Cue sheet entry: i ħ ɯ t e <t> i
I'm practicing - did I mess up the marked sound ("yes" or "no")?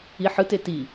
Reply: no